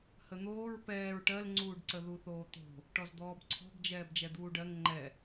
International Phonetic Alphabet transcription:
h ə n̪ oː ɹ p ɛː ɹ ʈ ɜ l ŋ͡ǀ uː ɖ ǀ ə ð u θ oː t̪ o̤ | ʈ ɔ z d̪ ɔː b ǀʰ ɔ̤ b d͡ʒ ɛː b d͡ʒ ɛ d̪ uː ɖ ɜ ŋ ŋ͡ǃ ɛ

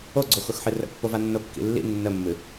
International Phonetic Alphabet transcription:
o ɡ͡ǀ o x ʊ x ħ ɨ r ə̰ pː o v a nː o kː ḭ lː ḭ nː ə mː ɨ

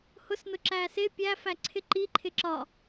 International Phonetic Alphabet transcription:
h ʊ s n ʊ ǁ æː s ɪ pʲ æ f æ ǀʰ ɪ ǃ i ǃʰ ɪ ǁ ɒ

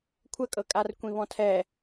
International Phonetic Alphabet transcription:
kʷʰ ə kʼ ɤ kʼ a r kʷ ĩ β ɔ̃ tʰ ɛ

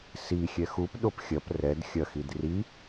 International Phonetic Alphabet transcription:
s i xʲ ɛ x u p ɗ o p xʲ ɐ p r ɛ d xʲ ɐ x i d r i

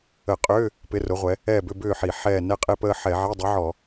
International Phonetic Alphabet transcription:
ə˧˩˧ qʼ ʏː˧˥˧ | p ɪ˧˥˧ r ʊ˨˥ ʁʷ ɛ˨˥ | ɛː˦˨ b ʏ˧˥˧ b ʏː˦˨ ħ i˧˩˧ ħ ɛː˦˨ n ɛ˦˨ qʼ e˦˨ p əː˦˨ ħ ɛ˧˩˧ ʕ e˧˥˧ dˤ ɛ˨˥ ʕ ɔ˧˩˧

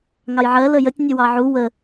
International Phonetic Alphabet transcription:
ŋ ɑ j ʕ ɜ l ə j ə tʲ nʲ ə w ɑ ʕ u w ə

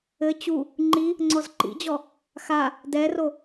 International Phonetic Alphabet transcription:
ɘ t͡ɕ u | ŋ͡ǃ i | ŋ͡ǀ ɔ z ǃ ḭ d͡ʑ ɔ | x a | d ɛ r o

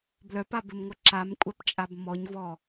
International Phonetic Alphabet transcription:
b l œ p a b ɘ m ŋʷ œ ǁ a m kʷʼ a p t͡ʃʼ a b m ɔ ɲ v ɔ

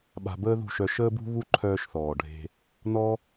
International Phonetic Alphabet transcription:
ɓ a̤˧ b əː˦ ð ṳ˦˨ ʃ œ˧ ʃ əː˧ b ṳ˧ β u˦ ǃʰ œː˧ ʃ θ ɔː˨ ɖʱ e̤˧ | n ɔ˦

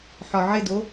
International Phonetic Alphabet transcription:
ħ ɒ ʕ ɪ d o

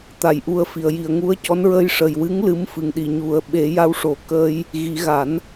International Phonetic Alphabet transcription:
t̪ a˨˩ j ʔ u˧ ə̯ f i˨˩ ə̯ j i˨˩ ə̯ ŋ u˧˥ ə̯ c ɔ˧˥ n ɹ ə˧ j ʂ ə˨˩ j w ɨ˧˥ ŋ l ɨ˧˥ m f ɨ˨˩ ŋ ɗ i˨˩ ɲ u˨˩˨ ə̯ ɓ e˨˩˦ j a˧ w ʂ o˨˩˦ k əː˧ j | ɣ i˨˩˦ ɣ a˨˩˦ n

